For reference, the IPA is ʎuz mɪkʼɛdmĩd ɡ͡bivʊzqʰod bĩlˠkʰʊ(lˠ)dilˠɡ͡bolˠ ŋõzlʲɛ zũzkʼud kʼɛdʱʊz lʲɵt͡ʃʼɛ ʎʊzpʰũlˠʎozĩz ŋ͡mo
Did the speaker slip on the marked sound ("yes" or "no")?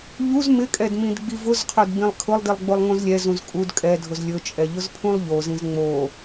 no